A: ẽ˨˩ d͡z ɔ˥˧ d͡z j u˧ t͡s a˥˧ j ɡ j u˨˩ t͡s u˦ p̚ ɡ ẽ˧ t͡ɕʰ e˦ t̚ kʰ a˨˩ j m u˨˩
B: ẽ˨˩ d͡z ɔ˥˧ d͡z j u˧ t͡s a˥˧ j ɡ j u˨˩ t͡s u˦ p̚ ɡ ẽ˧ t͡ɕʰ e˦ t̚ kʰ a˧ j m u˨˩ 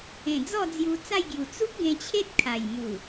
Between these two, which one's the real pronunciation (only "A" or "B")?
A